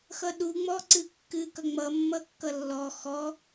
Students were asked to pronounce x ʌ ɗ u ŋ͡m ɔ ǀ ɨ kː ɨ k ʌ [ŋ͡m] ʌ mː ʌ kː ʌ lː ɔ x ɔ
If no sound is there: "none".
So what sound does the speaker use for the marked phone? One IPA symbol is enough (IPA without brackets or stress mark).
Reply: ŋ͡m